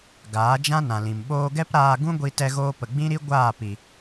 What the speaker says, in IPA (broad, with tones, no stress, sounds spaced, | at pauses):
ɡ aː˨˦ d͡ʒ ã˦ n ã˨ l ĩ˨ m ɓ oː˧ ɡ ɛ˦ p ɾ aː˧ ɡ ũ˦ ɡʷ i˧ t ɛ˧ ɣ oː˧ p ə˨ ɡ͡b ĩ˦ ɾ i˦ ɡʷ aː˦˨ p i˨